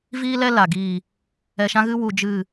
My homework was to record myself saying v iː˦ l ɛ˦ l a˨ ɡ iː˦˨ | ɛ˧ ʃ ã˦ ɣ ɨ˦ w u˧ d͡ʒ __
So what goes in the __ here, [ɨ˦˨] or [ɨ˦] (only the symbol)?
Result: ɨ˦˨